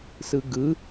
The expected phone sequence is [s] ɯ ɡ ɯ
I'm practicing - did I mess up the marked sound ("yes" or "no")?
no